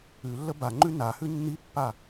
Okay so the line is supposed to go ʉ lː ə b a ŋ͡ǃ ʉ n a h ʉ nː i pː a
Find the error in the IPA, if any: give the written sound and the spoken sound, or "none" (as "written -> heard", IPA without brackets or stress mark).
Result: none